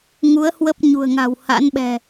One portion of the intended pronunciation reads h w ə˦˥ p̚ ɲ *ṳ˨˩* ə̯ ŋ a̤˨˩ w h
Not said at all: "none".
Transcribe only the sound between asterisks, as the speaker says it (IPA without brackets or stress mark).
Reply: ṳ˨˩